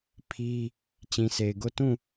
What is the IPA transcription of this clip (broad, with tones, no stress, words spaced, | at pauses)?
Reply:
pʰi˦ | t͡ɕĩ˨se˨ɪ̯ɡo˦˨ tũ˦˨